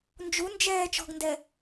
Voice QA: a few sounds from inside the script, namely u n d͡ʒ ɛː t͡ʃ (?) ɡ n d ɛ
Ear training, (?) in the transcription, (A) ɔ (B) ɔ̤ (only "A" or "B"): B